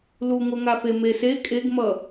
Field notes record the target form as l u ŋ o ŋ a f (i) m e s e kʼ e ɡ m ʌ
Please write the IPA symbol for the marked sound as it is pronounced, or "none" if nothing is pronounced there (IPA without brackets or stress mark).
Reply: e